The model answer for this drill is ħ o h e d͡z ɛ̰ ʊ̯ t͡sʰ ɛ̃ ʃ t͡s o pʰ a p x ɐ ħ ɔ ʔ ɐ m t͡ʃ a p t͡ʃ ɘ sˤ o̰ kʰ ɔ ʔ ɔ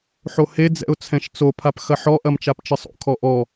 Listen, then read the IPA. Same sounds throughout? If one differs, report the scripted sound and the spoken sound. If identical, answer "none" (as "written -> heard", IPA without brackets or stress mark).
none